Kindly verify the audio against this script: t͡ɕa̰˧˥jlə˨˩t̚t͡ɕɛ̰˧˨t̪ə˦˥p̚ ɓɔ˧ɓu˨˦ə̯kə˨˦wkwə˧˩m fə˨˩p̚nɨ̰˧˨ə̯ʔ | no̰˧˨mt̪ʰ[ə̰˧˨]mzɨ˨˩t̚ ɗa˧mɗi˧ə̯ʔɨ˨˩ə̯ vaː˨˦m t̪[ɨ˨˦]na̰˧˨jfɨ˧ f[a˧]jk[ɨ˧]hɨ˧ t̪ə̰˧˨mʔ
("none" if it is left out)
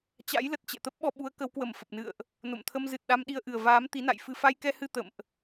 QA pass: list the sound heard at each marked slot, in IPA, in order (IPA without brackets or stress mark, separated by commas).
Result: ə˧, i˨˦, a˧, ɛ˧